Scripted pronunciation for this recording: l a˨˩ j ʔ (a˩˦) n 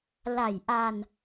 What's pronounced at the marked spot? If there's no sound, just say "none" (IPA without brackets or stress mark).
a˧